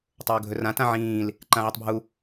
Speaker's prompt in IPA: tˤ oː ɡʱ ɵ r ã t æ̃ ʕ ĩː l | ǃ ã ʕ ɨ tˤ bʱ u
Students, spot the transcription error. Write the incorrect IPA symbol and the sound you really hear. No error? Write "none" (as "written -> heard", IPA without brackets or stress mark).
æ̃ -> ã